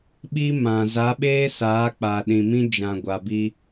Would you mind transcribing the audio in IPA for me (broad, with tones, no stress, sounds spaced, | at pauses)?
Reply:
ɓ i˦ m ã˨ z a˨˦ ɓ eː˦ s aː˨˦ k͡p a˨ ɗ ĩ˨ m ĩ˦ d͡ʒ ã˨ ɡʷ a˨ b i˦